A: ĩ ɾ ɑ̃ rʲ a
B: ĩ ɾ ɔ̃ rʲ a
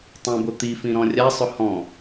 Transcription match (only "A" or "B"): B